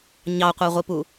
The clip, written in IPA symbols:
ɲ ɑ qʷ æ ʁʷ i p u

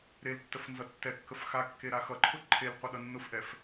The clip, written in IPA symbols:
ɾ e l tː ə f n z ʌ tː ɛ kː ə f x a kː e ɾ a x ʌ ǃʰ ʊ ǃʰ e l qʷ ʌ ɗ ʌ nː ʊ f ʔ ɛ f

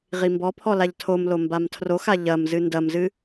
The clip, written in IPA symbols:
ʁ i m b ɔ pʰ ɔ l a ʎ tʰ o m l o m b a m tʰ r o x a ʎ ɐ m z ɨ n d ɐ m z ɨ

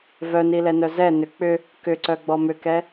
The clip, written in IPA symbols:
v œ n i l ɛ n œ z ɛ n ʏ k͡p ʏ | k ʏ ǀ œ ɡ͡b ɔ m ʏ k ɛ

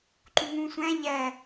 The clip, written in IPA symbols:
ǃ u ŋ ũ sʷ æ̃ ʎ æ

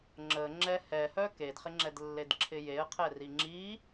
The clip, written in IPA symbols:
ŋ͡ǁ ə ŋ͡ǁ ɛ h ɛ h œ k e d χ ɪ ŋ͡ǁ ɛ d lː e d ǁʰ ɪ j e ə̯ qʰ ɛ r i ŋ͡ǁ i

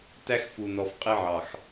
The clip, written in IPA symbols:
t æ˦ x f u˨ n ɔ˨ f qʼ ɪ˦ ʕ ɑ˨ x

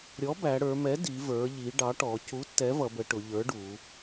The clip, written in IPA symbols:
ɾʲ ɔ˩˥ b æ˩˧ ɽ ə˞˩˧ m ɛ˩˥ d i˩˧ v ə˞˩˧ ʎ i˩˧ ɖ ɑ˩˥ ʈ ɔ˩˧ c u˩˥ tː ɛ˩˥ v ʌ˩˧ b ə˩˧ ʈ ʊ˩˧ ʎ ə˞˩˥ ɖ u˩˧

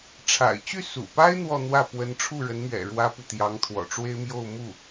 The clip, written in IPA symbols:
ʈ͡ʂʰ a̰˨˩ ɪ̯ t͡ɕ y˥˩ s ṵ˨˩ p a˥ ɪ̯ n̪ w ɔ˥˧ n̪ w ä˥˩ p w ə˧˥ n ʈ͡ʂʰ u˥˩ ɻ ə˧˥ n m ɥ ɛ̰˨˩ ɻ w ä˥ p u˨ t̪ j ɑ˧˥ ŋ t̪ʰ w ɔ̰˨˩ ʈ͡ʂ w e˥ ɪ̯ m j o˥˧ ʊ̯ m u˥˩

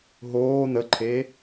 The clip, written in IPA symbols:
ɦ oː n ə ǃʰ e

